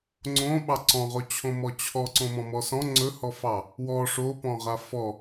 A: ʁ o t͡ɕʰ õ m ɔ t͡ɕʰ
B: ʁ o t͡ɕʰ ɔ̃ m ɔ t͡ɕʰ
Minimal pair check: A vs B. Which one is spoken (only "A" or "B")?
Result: A